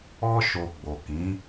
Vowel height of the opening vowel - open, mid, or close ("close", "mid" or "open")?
mid